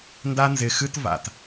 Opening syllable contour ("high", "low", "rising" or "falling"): high